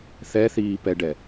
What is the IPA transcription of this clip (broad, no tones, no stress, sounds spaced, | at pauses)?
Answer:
θ ɛ θ iː p ɛ ɖ ɛ